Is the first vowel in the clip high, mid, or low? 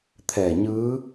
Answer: mid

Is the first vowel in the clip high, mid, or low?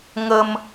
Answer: mid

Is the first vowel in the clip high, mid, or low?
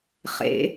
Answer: mid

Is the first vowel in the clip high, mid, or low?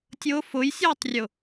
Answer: high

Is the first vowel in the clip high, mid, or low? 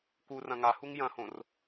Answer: high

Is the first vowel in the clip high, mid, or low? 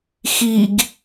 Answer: high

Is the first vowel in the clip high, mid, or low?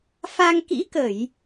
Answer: low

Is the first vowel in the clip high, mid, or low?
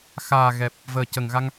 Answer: low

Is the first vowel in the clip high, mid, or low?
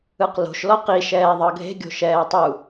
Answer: high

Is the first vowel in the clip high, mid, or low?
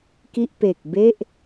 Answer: high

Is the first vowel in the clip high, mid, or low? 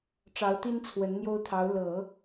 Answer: low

